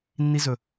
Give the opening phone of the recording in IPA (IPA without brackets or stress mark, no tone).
nː